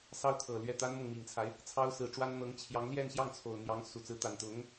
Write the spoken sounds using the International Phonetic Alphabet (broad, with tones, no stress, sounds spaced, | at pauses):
s ɑ˥ ʊ̯ t̪ʰ ɤ˨˩ l ɥ ɛ˥˩ t̪ a˥ n m ɤ˨ ŋ m i˨˩ ŋ t͡sʰ a˦ ɪ̯ | t͡sʰ ɑ˥ ʊ̯ s ɹ̩˧˥ ʈ͡ʂ w a˥ n n̪ ɤ˧˥ ŋ t͡ɕʰ j ɑ˧˥ ŋ l j ɛ˥˧ n ɕ j ɑ˥˩ ŋ t͡sʰ o˨˩ ʊ̯ n̪ j ɑ˧˥ ŋ s u˨˩ t͡s ɹ̩˧˥ t̪ a˨˩ n t̪ ʊ˧˥ ŋ